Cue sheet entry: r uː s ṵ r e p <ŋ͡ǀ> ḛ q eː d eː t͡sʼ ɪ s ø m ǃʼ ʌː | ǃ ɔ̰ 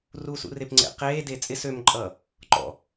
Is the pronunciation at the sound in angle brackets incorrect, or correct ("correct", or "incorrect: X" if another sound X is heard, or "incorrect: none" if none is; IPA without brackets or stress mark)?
correct